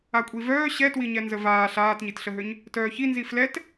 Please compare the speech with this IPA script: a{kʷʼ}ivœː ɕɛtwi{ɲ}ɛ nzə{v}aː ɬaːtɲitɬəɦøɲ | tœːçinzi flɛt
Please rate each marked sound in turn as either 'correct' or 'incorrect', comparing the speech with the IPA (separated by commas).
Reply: correct, correct, correct